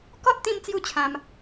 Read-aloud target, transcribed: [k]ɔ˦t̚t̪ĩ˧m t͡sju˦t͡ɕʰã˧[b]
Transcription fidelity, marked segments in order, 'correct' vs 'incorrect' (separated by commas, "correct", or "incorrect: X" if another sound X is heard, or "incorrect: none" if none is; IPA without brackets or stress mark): correct, incorrect: m